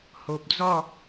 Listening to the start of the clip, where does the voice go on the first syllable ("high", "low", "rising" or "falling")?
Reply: low